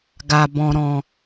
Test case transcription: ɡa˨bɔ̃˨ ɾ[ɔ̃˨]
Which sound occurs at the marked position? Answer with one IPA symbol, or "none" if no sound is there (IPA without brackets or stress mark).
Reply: ɔ̃˨